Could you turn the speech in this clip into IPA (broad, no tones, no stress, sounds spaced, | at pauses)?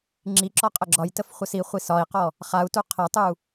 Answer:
ŋ͡ǁ i ǁ ɔ qʼ ə ɡ͡ǁ ɒ j t ə f χʷ ə s i χʷ i s ɒ i̯ q ɔ | χ a u̯ t u qʰ ə tˤ u